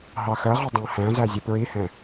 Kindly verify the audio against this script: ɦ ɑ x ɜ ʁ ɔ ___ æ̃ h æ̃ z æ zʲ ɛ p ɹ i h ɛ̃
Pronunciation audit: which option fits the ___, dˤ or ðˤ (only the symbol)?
dˤ